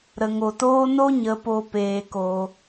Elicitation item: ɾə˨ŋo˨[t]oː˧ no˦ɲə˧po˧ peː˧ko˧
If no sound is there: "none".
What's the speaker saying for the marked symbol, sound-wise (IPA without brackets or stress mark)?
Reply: t